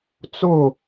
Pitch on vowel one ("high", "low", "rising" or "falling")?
falling